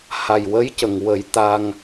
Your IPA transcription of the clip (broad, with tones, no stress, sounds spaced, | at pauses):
h a˨˩ j w ə˧˥ j c ə˨˩ ŋ w ə˨˩˦ j t̪ a˧ ŋ